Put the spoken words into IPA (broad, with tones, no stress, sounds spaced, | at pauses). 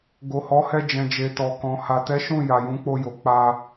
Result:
ɡ o˨ h ɔ˨˦ h ɛ˧ d͡ʒ ɛ̃˨ d͡ʒ e˨ t ɔ˨ k ɔ̃˨ h a˨ t ɛ˨˦ ʃ ũ˦˨ j a˨ j ũ˨˦ k͡p o˧ j o˨ k͡p a˧